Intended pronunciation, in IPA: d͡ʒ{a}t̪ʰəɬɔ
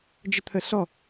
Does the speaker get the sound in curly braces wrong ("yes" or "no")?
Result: yes